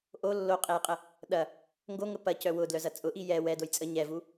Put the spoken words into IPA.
ʔo lːoqʼejqʼə | ɗɐ | ŋɡoŋə pɐcœ wʊdlœzɐ t͡sʼʊʔi jɛ wɛdoj t͡sʼə ɲɛvu

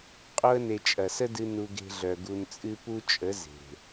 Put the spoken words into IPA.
qʼo˧ə̯ne˨ t͡ʃʼɐ˨sə˦dɨ˧ nu˧ɡe̤˧ɮœ˨ ɡu˨nt͡sʼɨ˧pu˦t͡ʃʼə˨˦ ze̤˨

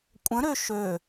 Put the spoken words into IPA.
kʷʼə̃ɾø ʃø

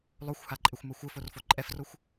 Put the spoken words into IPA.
lˠoxʷhaǃʼɪxʷmʌ xʷɘforfo ǃʼɛfroxʷ

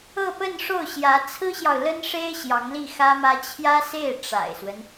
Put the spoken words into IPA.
ɤ˥˧pə˥˧nʂo˥˩ʊ̯ɕjä˧˥ t͡sʰɹ̩˥ɕjɑ˨ʊ̯ lə˥nʂe˥ɪ̯ ɕjɑ˧˥ŋli˥˩xä˥mä˥ t͡ɕʰjä˥se˥˩ɪ̯ ʈ͡ʂa̰˨˩ɪ̯swə˦n

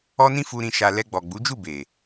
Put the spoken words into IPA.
ɔ˦nĩ˦fu˧ ɾĩ˧ʃa˧ lɛ˧ɡ͡bɔ˨ɡ͡bu˨˦d͡ʒu˦˨ be˨

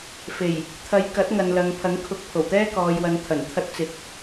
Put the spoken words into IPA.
fe˨˩j | t̪ʰɐ˨˧j kɐ˨˥t̚ŋɐ˨nlɐ˨ŋ pʰɐ˨˥ŋkʰʊ˨˥k̚ pʰo˨˩wt̪ɛː˥kɔː˨jwɐ˨˧n t̪ʰɐ˨˩nt̪ʰɐ˧t̚t͡sɪ˨k̚

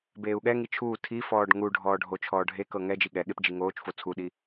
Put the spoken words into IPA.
beːu̯ɠɛŋi t͡ʃʰuː tʰifɔːɖ ŋu ɖʱɔːɖʱot͡ʃʰɔː ɖʱekɤ ŋɛd͡ʒi ɠɛɠep d͡ʒiŋoːt͡ʃfo t͡sʰuɗi

